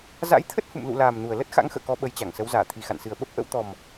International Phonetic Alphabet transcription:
za̰˧˥jt̪ʰə˦˥t̚hṵ˧˨m lṵ˧˨laː˨˩m nu˨˩ə̯ lə˦˥t̚ xa̰˧˥ŋxə̰ː˧˨kɔ˨˦ ɓə˨˦jt͡ɕa˧˩ŋsə˨˦w zaː˧˩t̪ʰi˨˩xa̰˧˨nsɨ˨˩ə̯ ɓə˦˥p̚ʔə̰˧˥w t̪ɔ˨˩m

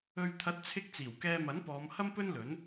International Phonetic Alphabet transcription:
ɵ˨ɥt̪ʰɐ˨˥t̚t͡sʰɪ˧k̚ t͡siː˨˩wkɛː˧mɐ˨˥npɔː˨˧m hɐ˥mpɵ˥nlɵ˨˥n

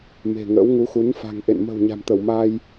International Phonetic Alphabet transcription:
me̤˨˩ŋə̰ː˧˥wŋu˨˦xu˨˦n fa̤˨˩ŋʔḛ˧˨n mə̤˨˩w ɲa̤˨˩mt̪ə˧˩wmaː˧j

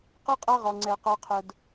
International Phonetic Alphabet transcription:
qɛ˦qʼa˦ ʁɔ˧ŋ͡ǀɛ˧ qa˦qʰʊ˦d

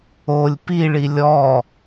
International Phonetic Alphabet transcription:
olʲ piɭi lʲɔ

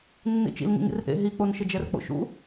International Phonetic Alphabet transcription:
nːḭt͡ʃḭl ŋḭŋḭrʔḛ ɦik͡ponʃɪ d͡ʒɛrk͡po̰ʃṵ

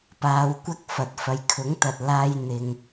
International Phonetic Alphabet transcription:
paː˨˧wkʷɐ˥k̚ fɐ˨t̚fɐ˨jkʰʊ˨˥ŋt̪ɐ˨t̚ laː˧jn̪ɪ˨ŋ

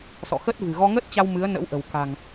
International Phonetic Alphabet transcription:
sɔ̰˧˨xə˦˥t̚vɨ̤˨˩ ɣɔ˧ŋə˦˥t̚t͡ɕa˧w mɨ˨˦ə̯nə̰˧˥wʔə̤˨˩wka̤˨˩ŋ

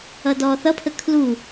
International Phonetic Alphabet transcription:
ʌdɔːθʌpʰə kʰlu

